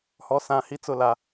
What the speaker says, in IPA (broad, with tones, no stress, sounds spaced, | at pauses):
h ɔ˨ s ã˨ h i˦ t͡s ʊ˦˨ l a˨